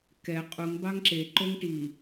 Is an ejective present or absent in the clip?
present